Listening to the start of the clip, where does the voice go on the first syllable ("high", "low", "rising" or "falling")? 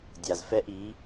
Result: low